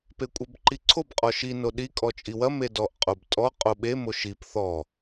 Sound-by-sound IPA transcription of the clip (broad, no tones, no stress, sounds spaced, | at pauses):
p e kʷʼ ɐ b ǃ i ǀʰ o b qʼ ɔ ʃ i n o ɗ i kʼ ɔ t͡ʃʼ i w ɐ m e d ɔ ʔ qʼ o b tʼ ɔ qʼ o ɓ e m o ʃ i p θ ɔ